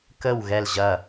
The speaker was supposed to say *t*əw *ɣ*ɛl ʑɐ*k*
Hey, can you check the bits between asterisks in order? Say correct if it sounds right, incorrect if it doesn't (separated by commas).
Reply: incorrect, correct, incorrect